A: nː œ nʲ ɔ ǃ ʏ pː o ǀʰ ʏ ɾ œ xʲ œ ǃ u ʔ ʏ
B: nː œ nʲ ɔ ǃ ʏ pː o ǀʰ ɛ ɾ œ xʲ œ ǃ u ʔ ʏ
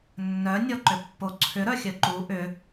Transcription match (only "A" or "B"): A